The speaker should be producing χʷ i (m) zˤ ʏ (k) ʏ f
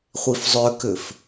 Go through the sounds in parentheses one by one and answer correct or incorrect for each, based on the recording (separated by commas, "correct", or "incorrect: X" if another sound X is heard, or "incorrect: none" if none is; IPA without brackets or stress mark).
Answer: incorrect: f, correct